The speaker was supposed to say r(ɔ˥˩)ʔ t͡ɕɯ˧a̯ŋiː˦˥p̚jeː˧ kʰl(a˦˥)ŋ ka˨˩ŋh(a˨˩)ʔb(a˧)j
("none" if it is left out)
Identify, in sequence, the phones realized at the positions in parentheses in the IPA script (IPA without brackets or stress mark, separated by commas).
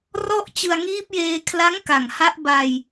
ɔ˥˩, a˦˥, a˦˥, a˧